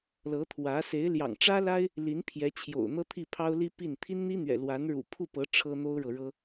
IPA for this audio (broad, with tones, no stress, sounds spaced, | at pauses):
l ɤ˧˥ t̪ʰ w ä˧˥ s e˧˥ ɪ̯ l j ɑ̰˨˩ ŋ ʈ͡ʂ ä˥ l a˥ ɪ̯ | l i˧˥ n pʰ j ɛ˧˥ t͡ɕʰ j o̰˨˩ ʊ̯ n̪ ɤ˥ t̪ʰ i˥˩ pʰ ɑ˥ ʊ̯ l i˥ p i˥˩ n t̪ʰ i˥ n n̪ i˥ n̪ ɥ ɛ̰˨˩ l w a˧˥ n ɻ ṵ˨˩ pʰ u˥˩ p ɤ˧˥ ʈ͡ʂʰ ɤ˥ n̪ o˥ ʊ̯ ɻ ɤ˨ ɻ ɤ˥